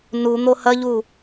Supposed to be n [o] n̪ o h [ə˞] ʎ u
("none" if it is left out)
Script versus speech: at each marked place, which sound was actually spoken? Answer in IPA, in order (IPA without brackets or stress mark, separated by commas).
u, ɐ